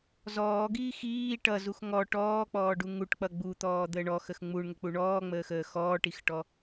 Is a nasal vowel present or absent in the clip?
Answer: absent